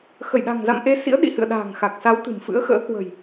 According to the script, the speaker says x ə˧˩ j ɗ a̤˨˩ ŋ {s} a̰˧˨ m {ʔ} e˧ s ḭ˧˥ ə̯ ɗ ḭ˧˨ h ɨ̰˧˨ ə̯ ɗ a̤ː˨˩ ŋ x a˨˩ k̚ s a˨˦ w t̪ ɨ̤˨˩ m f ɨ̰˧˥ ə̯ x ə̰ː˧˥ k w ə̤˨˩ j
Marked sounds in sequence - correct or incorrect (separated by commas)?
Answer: incorrect, correct